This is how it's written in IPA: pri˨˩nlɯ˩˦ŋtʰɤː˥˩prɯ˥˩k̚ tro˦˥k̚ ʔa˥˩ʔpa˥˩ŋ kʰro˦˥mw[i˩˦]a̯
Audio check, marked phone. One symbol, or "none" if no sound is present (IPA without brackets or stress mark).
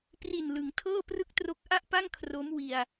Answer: i˧